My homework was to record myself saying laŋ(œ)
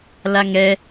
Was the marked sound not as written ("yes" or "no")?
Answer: yes